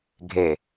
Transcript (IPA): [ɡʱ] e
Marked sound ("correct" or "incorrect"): correct